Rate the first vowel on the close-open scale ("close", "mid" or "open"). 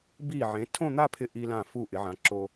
close